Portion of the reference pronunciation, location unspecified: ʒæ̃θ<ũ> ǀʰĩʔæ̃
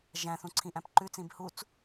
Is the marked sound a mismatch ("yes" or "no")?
no